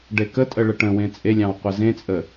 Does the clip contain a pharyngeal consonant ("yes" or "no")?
no